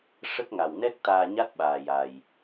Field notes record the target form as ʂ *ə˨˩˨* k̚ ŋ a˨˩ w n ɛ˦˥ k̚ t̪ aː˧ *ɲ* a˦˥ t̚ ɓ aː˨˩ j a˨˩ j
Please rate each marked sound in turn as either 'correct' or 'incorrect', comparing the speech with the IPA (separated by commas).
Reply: incorrect, correct